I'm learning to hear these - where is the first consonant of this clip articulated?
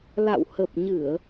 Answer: tongue tip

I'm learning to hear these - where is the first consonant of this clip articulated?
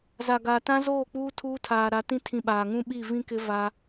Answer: tongue tip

